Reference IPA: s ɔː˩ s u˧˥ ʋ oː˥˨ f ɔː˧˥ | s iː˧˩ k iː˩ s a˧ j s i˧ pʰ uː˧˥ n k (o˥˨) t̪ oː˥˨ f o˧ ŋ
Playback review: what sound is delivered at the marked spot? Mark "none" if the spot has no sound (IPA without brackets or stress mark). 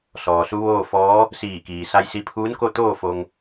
o˥˨